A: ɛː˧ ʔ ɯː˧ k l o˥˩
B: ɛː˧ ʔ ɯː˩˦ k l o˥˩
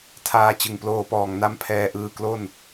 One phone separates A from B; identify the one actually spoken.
A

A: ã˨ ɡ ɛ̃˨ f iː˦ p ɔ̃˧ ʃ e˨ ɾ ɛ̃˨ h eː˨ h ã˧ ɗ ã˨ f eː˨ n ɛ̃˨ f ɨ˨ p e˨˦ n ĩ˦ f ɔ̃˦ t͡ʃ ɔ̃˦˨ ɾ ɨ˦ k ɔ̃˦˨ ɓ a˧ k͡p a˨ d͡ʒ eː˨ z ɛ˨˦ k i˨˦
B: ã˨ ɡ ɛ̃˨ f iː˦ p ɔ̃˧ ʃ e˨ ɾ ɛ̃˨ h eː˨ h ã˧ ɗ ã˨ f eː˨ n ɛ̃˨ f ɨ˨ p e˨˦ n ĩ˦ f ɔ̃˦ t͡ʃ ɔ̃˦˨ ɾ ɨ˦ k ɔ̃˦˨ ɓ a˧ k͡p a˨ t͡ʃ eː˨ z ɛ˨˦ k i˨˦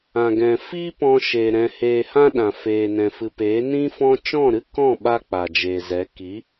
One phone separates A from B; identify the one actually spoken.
A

